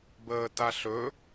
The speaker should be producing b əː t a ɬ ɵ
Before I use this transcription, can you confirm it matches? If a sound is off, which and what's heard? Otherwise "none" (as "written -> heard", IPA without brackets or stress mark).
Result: none